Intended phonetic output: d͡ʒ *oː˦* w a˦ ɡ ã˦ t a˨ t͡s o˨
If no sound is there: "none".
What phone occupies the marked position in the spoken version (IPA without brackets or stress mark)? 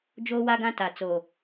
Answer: oː˦